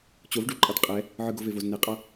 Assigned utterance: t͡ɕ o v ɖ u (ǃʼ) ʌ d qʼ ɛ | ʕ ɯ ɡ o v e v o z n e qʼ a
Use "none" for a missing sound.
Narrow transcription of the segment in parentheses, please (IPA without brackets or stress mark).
ǃʼ